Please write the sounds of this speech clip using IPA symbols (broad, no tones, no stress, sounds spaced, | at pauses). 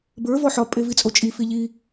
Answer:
b ə˞ v ɔ ħ ɒ pʼ e v i t͡sʼ o t͡ʃʼ i f i ʎ i